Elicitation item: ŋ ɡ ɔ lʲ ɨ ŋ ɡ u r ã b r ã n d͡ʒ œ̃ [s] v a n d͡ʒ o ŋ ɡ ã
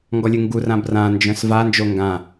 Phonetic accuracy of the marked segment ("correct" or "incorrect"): correct